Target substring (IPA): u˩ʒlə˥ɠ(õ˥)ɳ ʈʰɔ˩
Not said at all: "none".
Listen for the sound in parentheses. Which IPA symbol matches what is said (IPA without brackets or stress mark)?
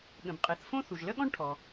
ɔ̃˥